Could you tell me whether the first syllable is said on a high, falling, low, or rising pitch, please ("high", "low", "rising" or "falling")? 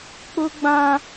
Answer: high